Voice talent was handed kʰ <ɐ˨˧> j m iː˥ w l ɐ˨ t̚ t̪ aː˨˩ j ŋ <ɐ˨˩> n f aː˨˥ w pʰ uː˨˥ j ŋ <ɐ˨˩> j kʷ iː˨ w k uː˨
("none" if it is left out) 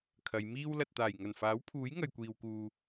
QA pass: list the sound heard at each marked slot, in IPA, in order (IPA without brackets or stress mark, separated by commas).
ɐ˨˧, ɐ˨˩, ɐ˨